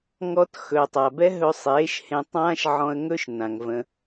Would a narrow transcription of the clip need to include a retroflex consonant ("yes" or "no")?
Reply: no